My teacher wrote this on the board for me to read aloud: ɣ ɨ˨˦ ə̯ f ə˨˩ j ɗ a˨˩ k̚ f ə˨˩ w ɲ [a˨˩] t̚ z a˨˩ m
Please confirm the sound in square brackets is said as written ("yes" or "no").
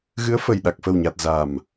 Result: yes